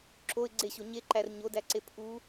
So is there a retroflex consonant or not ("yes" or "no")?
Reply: no